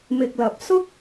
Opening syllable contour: low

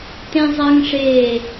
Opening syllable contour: high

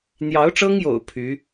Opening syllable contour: rising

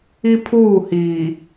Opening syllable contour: high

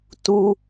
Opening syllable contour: high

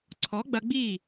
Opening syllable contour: rising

